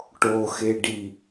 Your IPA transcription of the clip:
ʈ o x e ɖ i

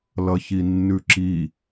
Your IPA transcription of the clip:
l ʌ ç i nː ʉ ǁ i

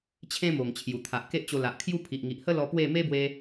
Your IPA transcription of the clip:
t͡ɕʰ ẽ˦ m o˨˩ ŋ t͡ɕʰ j u˨˩ t̪ʰ a˨ ʔ k e˦ ʔ t͡ɕ o˧ l a˨ ʔ kʰ j u˦ pʰ i˨ ʔ ŋ i˨ ʔ h ə˦ l ɔ˧ p w e˥˧ m e˦ b w e˧

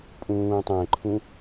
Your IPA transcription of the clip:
pʼ ũː tˤ ɛ̃ ǃʰ ũ

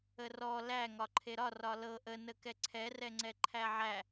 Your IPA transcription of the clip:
ə r ɔ l æ ŋ ɒ ǃʰ e ɾ ɒ r ɒ l ɤ ʔ ə n ə k ɛ ǀʰ ɛ r ɛ ŋ͡ǀ ɛ ǃʰ æ ʕ æ

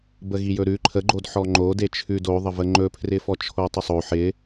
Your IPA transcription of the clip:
b ə ɣ i j ɵ ɾ ʉ ǃʰ ə ɡ͡ǃ o d ħ ɔ ŋ͡ǃ o d e t͡ʃʰ ʉ d o ðˤ ə v ə ŋ͡ǃ ɵ pʰ r ɪ f ɔ t͡ʃʰ o tˤ ɪ sˤ o ħ ɪ

